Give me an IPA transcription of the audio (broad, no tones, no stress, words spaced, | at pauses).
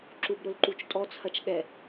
ǁubɾʊlǃut͡ʃtʼɔ t͡sʰɐt͡ʃɠɛ